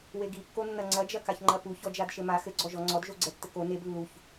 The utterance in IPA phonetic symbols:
weɡikːonːɐ ŋ͡ǀɐd͡ʒɐkaçŋ͡ǃɐ puçɔd͡ʒad ʃɘma xɘɡ͡ǀɔ ʒɔŋ͡ǀɔdʒo ɡ͡ǀɛtːɘko neb lːuç

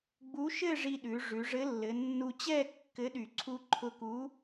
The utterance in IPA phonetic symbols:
ɡ͡bu˨˥ʃɘ˥˨ ʐi˧ɗʉ˩˧ʐʉ˩˧ ʐɘ˨˥lːɘ˩˧nːu˧t͡ɕɛ˥˨ kːɘ˨˥ɗy˨˩ǀʰu˧ ǃʰʊ˧ku˨˥

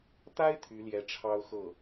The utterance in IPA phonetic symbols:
t̪a˥ɪ̯ t̪ʰy˧˥ljɛ˧˥ ʈ͡ʂʰɑ˥ʊ̯ xɤ˥˩

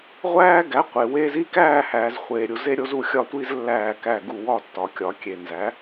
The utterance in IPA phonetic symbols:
ʁʷæː˦ɡæ˨˥ qʷe˨we˦z i˦kæː˦˨hæː˨z χʷeː˨ɾʲu˨ze˦ ɾʲo˦zu˦˨xʲɒ˦tʷi˦z lːæː˦˨kæ˦˨ɡu˦˨ wɒ˦˨tːɒ˨kʲɒ˨˩˦kʲe˨ nzæ˨˥

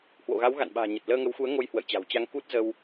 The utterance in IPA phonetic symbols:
hwo̰˧˨ɣa˨˦wɣa̰˧˨nɓa̤ː˨˩ ɲə˨˩t̚ləː˧ŋə˨˦wxu˨˦ə̯ ŋo˧jhwə̰˧˨jt͡ɕa̤˨˩wt͡ɕa˧ŋ ku˦˥t̚ zə˧w

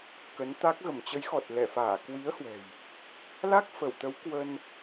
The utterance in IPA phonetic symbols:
kə˨˦nt̪a˦˥k̚ ɣə˧˩mt͡ɕə˨˦jxɔ˨˩t̚ lɛ˧˩faː˧˩ kwi˨˦ə̯hwɛ̤˨˩j | la˦˥k̚fə˧˩wt̪ə˨˦w kwə˧n

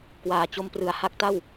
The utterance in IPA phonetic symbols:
kwaː˨˩t͡ɕo˧mprɯ˩˦a̯ ha˦˥k̚ta˥˩w

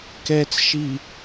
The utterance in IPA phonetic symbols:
kɛt͡sʃi

